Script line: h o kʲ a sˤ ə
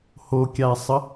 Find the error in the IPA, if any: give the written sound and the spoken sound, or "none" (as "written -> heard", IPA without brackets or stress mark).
none